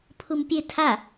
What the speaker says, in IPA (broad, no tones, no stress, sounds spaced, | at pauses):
pʰ u m pʲ e tʰ a